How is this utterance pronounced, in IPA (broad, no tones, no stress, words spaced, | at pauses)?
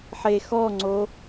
ħexɔŋ͡ǀo